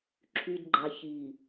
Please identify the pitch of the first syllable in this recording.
low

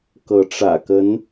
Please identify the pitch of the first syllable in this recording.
rising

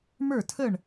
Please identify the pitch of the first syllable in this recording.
falling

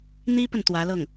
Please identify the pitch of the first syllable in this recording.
high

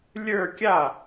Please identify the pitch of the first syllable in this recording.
falling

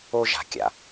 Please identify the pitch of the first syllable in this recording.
high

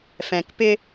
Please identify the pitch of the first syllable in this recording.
low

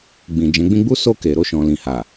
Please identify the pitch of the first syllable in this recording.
low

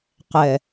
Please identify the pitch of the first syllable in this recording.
low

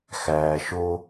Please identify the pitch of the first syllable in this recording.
low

